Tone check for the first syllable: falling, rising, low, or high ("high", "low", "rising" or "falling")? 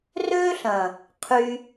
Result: high